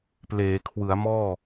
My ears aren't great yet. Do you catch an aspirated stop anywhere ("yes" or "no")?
yes